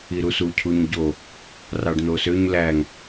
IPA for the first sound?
i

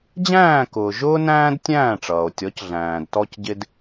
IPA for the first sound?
d͡ʑ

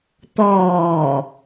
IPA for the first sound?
t̪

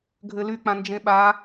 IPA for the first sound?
ɡʱ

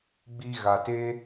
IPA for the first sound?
ɡ͡b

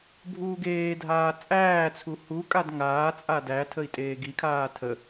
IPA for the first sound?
bʱ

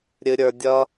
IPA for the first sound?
ɾʲ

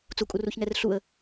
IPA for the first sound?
t͡s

